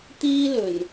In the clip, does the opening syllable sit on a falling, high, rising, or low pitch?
high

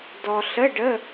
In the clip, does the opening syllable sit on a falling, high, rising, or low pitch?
low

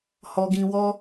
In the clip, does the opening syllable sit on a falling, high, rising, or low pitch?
low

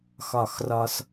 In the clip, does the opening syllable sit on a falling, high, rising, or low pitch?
falling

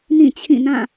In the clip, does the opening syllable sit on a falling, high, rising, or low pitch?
falling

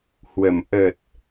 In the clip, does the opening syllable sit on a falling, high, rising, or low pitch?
low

